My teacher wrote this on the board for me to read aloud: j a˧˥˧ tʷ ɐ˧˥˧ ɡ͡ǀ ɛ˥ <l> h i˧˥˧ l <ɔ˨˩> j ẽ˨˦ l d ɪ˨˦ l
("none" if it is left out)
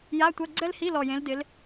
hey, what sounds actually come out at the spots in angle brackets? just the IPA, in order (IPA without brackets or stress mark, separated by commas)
l, ɔ˨˩